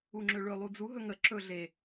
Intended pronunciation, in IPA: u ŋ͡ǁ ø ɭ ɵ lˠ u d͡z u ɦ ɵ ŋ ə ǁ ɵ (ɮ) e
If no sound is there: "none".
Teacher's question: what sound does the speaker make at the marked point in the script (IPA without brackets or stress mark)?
ɮ